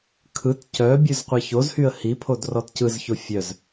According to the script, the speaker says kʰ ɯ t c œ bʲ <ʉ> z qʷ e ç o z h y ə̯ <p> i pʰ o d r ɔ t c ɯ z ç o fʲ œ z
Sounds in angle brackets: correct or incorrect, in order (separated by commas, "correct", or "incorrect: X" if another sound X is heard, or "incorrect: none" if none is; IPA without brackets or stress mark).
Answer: correct, incorrect: h